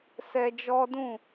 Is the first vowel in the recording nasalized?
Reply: no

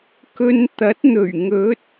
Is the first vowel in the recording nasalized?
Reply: no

